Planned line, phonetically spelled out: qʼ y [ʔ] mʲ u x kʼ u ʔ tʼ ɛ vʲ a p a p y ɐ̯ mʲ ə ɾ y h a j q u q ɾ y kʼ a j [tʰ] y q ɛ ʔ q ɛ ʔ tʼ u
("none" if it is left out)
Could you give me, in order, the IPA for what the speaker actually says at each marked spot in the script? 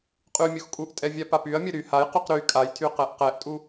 none, tʰ

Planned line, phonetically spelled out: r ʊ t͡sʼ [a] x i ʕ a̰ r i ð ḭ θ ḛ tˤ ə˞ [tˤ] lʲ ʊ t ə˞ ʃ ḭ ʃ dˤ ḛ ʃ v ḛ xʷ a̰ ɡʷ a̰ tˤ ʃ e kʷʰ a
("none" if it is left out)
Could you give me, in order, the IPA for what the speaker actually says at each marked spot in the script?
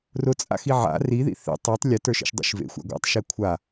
a̰, tˤ

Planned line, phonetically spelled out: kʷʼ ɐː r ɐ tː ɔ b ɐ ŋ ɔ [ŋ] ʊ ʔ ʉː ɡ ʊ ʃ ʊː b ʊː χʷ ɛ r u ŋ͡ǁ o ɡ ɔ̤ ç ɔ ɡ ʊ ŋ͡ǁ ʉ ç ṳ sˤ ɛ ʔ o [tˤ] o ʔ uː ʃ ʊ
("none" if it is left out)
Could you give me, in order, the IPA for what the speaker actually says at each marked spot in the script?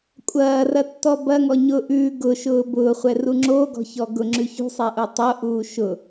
ɲ, tˤ

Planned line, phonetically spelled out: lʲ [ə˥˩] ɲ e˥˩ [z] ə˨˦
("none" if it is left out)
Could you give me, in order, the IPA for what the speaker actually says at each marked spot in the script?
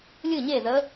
ɨ˥˩, z

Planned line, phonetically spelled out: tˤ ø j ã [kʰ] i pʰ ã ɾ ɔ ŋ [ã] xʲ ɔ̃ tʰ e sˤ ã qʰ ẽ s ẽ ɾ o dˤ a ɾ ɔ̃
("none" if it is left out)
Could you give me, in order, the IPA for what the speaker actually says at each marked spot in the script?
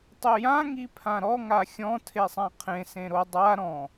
ŋ, a

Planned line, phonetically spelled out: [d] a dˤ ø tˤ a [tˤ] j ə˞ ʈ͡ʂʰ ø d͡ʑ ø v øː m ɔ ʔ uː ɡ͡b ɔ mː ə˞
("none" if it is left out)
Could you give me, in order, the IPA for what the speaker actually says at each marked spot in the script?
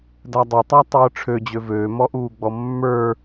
d, tˤ

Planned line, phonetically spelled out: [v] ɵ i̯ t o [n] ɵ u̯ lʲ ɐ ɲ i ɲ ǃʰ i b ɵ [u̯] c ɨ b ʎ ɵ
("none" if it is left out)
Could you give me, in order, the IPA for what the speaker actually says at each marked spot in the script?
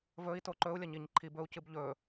v, ǃ, u̯

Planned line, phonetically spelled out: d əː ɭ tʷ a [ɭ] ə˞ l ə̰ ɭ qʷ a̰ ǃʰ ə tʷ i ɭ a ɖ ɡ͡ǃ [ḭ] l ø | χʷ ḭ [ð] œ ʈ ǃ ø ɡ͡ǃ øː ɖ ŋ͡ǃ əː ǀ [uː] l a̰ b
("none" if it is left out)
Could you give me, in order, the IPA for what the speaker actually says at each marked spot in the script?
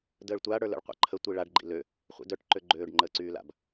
ɽ, ḭ, d, yː

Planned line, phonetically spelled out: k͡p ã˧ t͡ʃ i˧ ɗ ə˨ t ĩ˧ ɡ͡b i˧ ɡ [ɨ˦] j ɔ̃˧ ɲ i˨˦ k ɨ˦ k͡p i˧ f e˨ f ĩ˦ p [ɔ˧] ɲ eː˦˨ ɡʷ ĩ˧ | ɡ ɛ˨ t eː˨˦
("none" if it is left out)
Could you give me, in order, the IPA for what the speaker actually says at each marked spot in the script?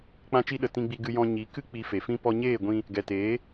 ɨ˧, ɔ˧

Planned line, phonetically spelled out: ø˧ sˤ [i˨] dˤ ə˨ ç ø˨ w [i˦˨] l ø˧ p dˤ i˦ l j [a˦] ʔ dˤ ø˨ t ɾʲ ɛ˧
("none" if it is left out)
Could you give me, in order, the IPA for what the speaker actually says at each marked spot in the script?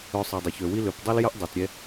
i˨, i˦, ə˦

